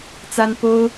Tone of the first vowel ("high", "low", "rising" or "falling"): high